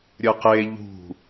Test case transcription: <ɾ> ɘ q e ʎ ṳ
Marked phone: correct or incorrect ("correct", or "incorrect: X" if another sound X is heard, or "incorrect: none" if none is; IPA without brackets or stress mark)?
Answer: incorrect: ɾʲ